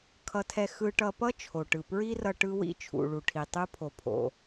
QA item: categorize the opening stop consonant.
aspirated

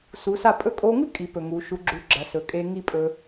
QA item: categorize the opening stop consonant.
ejective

